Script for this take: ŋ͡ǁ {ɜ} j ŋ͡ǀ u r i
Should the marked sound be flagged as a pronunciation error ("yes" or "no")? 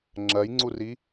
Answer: no